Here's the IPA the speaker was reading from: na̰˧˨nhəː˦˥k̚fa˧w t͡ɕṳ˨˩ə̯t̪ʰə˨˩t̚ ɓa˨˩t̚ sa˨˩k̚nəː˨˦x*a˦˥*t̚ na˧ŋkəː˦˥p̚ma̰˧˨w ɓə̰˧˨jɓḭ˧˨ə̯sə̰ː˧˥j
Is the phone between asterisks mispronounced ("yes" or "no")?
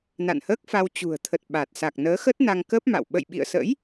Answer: yes